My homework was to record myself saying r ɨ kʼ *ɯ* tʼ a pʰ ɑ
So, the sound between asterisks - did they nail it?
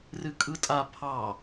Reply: yes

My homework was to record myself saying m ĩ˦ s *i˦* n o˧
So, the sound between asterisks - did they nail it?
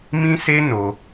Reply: no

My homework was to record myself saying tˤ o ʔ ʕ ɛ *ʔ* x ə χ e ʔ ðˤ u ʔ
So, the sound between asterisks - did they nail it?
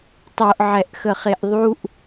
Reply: yes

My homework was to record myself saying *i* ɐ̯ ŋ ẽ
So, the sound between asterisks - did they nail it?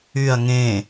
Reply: no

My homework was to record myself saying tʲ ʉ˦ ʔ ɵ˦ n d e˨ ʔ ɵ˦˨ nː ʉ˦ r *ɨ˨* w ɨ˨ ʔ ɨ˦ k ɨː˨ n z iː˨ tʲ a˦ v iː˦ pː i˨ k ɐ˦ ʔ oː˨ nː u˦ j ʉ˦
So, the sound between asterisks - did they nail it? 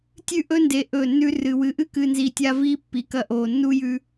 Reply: yes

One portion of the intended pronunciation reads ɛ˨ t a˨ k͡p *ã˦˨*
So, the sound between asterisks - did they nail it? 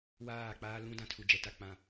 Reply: no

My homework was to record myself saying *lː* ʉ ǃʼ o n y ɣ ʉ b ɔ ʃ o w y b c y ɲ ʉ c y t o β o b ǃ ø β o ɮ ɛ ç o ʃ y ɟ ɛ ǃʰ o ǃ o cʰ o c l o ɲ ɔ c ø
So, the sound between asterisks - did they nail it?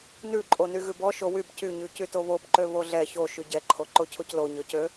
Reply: no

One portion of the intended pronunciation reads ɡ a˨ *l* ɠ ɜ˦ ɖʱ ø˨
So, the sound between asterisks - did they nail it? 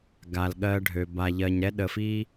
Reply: yes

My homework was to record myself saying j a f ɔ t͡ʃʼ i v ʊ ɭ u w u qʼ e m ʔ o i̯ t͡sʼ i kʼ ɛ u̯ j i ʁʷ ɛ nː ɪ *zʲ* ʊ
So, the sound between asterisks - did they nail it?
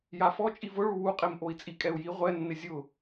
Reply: yes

